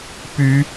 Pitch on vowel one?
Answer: rising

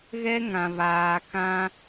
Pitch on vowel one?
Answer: high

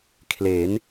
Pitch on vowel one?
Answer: rising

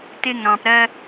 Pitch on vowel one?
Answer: high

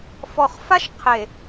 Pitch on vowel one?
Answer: low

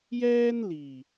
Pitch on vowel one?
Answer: high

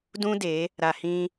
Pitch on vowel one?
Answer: high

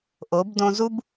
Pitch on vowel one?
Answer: rising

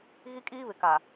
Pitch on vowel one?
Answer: high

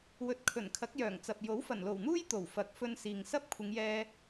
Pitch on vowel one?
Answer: low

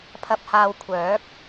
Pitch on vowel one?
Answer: low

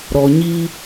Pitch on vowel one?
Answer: low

